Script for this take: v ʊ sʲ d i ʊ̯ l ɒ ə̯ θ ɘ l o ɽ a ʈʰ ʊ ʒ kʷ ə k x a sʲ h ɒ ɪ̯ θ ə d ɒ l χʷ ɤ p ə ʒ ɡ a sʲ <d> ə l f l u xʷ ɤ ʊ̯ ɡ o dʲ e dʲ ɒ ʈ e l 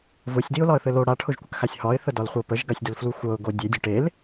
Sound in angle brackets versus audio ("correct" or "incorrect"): correct